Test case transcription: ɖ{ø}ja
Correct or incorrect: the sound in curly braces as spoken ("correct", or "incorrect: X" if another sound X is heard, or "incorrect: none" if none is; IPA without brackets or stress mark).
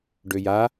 correct